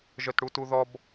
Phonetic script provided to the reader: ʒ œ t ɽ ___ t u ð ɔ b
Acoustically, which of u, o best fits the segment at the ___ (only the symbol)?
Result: u